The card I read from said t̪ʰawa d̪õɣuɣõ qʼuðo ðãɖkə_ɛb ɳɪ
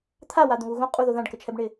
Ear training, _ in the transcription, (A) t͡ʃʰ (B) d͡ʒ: A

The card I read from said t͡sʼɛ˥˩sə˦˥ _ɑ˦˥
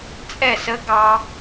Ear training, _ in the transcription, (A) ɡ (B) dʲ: A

